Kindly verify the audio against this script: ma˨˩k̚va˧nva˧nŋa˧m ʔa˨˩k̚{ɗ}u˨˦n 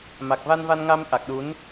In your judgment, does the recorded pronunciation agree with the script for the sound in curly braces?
yes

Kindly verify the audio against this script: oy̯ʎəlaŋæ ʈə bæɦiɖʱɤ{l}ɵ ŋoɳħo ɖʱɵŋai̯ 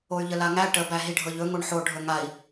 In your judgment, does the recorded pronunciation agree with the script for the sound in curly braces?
no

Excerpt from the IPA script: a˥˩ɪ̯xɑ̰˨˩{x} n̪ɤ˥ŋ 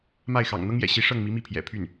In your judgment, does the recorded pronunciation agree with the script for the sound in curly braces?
no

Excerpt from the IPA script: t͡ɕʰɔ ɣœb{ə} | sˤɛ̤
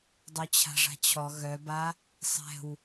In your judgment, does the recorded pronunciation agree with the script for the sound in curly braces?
no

